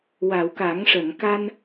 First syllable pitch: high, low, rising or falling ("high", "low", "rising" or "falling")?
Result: low